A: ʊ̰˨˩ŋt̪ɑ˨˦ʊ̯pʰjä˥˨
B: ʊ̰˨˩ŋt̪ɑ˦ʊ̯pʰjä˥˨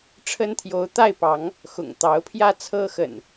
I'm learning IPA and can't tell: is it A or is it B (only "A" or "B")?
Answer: A